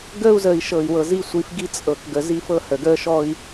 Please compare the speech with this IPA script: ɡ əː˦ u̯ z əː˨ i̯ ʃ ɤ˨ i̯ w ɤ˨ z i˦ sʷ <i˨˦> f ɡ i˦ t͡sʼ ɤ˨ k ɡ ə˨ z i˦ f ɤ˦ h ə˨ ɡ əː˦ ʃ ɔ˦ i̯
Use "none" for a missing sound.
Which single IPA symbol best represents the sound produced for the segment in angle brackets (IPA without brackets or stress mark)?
i˨˦